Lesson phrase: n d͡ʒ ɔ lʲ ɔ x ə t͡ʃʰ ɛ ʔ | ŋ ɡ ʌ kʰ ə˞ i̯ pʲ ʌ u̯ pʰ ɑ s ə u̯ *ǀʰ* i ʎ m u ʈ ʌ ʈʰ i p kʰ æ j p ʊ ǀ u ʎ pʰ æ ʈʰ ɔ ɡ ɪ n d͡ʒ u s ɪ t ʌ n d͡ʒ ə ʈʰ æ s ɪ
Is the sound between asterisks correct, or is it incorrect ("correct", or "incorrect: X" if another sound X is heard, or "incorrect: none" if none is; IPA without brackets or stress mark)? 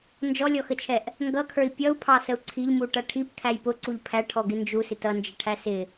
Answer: correct